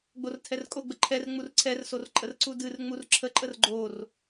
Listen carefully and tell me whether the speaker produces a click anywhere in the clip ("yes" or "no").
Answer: yes